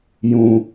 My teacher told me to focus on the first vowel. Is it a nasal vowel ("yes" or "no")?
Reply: yes